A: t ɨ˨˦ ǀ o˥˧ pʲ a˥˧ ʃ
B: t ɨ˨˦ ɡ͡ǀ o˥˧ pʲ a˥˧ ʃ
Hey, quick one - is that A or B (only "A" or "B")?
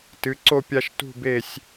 A